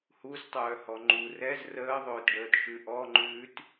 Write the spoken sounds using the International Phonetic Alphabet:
h u z tˤ œː h ɔ ŋ͡ǃ u r ɛ z r əː ðˤ ʊː t ɖ əː t ʃ ʉ ʔ ɔ ŋ͡ǃ ʉː t

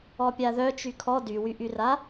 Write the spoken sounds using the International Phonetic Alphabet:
ɔ pʲ a ð œ t͡ʃ y kʰ ɔ d y w y ʔ y r a

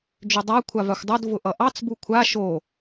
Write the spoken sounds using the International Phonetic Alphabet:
d͡ʒ ʏ dˤ a kʷʰ a v a xʷ dˤ o d v ʊ ʔ ʌ ʔ ɑ t͡s b u kʷʰ a ʃ o

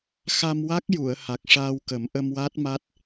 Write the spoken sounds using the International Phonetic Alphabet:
x a˧ m w a˦˥ k̚ j u˨˩˨ ə̯ h a˨˩ k̚ ʂ aː˧ w k ə˨˩˦ m ʔ ə˧ m w a˦˥ t̚ m a˦˥ t̚

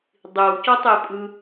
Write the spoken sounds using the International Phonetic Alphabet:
dˤ i w c ɔ tˤ i pʼ ɯ

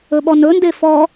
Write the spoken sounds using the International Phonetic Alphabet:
ɵ ɓ ɔ n ɵ n d e f ɔ

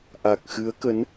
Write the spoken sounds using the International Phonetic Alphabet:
ʔ a˨˩ k̚ x ɨ˨˦ ə̯ k ə˨˦ n

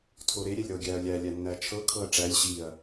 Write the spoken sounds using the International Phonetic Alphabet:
tʰ o ɾ e ɾʲ ɛ lʲ ɾ ɤ ɡʲ æ ɐ̯ lʲ æ lʲ æ nː æ t͡ʃʰ ɤ kʰ ɤ ɐ̯ ʈ͡ʂ æ lʲ ɕ i ɐ̯

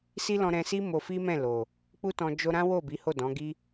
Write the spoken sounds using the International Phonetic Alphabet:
s i˦ l ɔ̃˧ ɾ ɛ̃˧ s i˦ m o˧ f i˦ m ɛ̃˦˨ l o˨ | k͡p u˦ t ɔ̃˧ d͡ʒ o˧ ɾ ã˦ w o˦˨ b i˨˦ h o˦˨ d ɔ̃˨˦ ɡ i˦

